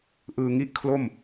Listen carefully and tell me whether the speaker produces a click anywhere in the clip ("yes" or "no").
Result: no